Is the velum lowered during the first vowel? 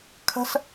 no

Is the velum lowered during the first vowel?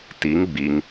no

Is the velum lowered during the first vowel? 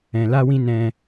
yes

